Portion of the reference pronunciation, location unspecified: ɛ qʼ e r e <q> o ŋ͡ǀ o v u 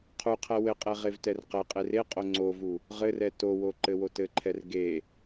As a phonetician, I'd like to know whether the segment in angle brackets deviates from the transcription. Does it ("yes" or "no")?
yes